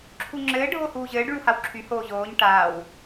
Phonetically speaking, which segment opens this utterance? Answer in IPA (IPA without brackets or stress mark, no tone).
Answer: ǁʰ